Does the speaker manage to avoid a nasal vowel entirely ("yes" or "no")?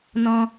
no